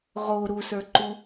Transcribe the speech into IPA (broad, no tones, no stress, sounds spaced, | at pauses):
ʁ o ɾ u s ə˞ ǃ u